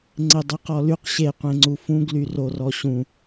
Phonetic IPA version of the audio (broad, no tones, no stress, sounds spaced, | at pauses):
ŋ͡ǀ e dˤ e q ɔ l y q ɕ e qʷ ẽ ŋ͡ǀ u f ũ ɡ l y r o r ɔ ɕ ũ